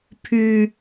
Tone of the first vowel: low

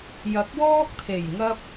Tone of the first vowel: rising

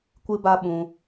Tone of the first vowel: high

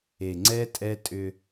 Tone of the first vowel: low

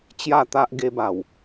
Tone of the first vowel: falling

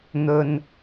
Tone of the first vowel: low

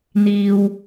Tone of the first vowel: high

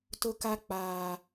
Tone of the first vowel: high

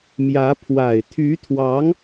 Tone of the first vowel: rising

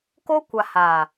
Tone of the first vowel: high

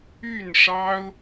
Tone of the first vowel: falling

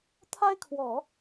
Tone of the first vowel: high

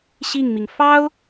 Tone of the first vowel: falling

